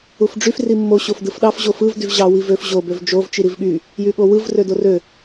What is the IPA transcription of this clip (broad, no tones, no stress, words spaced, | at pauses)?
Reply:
ufɖ͡ʐyf rimːo ɕofdɯfɗɑf ʑofɯv dyvʑɑ wivøf ʑo bøvd͡ʒov t͡ʃiɾivɠy | jyɠowɯv rødorø